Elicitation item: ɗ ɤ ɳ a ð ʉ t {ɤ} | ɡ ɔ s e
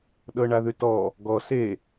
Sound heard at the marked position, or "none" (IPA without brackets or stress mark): ɔ